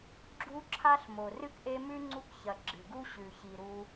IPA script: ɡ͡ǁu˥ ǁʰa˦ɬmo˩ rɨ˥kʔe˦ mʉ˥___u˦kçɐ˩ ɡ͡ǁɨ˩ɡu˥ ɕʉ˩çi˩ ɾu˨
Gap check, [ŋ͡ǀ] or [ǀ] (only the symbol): ŋ͡ǀ